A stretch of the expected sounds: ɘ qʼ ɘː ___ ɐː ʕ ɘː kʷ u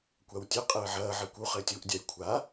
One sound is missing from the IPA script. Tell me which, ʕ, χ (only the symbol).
ʕ